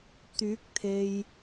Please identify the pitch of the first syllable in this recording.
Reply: rising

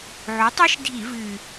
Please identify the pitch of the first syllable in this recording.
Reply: rising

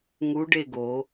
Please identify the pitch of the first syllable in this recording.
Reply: rising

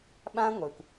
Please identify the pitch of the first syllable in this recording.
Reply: high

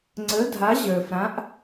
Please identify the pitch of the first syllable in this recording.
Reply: rising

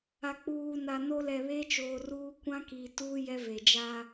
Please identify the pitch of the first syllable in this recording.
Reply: low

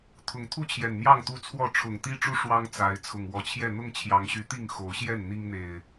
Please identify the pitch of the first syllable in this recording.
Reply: rising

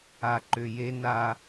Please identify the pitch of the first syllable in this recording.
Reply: low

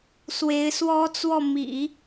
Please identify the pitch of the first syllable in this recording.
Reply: rising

